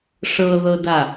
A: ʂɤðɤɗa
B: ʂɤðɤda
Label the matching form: B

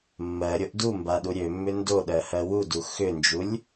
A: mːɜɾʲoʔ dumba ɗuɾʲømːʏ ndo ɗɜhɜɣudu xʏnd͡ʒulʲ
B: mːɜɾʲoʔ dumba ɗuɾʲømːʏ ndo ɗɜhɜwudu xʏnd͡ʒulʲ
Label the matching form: B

